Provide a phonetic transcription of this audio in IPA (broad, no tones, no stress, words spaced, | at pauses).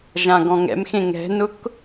ʒãɡɔ̃ŋɛ̰mxẽ ŋɛ̤nʊk